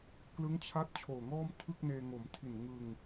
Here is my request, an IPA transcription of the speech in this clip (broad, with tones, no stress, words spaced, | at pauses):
klɯ˦˥ŋt͡ɕʰa˦˥t̚ t͡ɕʰoː˨˩ŋɔː˥˩mtʰɯ˥˩k̚neː˧ ŋo˩˦mtʰi˨˩n ŋɯ˧ŋ